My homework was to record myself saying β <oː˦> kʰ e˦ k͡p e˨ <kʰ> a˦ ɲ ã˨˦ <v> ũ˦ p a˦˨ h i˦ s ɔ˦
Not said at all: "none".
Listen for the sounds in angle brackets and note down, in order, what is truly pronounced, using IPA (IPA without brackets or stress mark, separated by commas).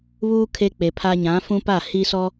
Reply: uː˦, pʰ, f